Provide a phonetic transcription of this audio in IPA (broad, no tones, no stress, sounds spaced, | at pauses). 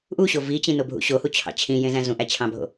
ʔ u ɕ o v i t͡ɕ ĩ n o bʱ ṵ ɕ o h u t͡ɕʰ ɑ̰ t͡ɕʰ ĩ j ẽ z æ̃ z ũ ʔ æ t͡ɕʰ ɑ̃ bʱ o̰